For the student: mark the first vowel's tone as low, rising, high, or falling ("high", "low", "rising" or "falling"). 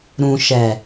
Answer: low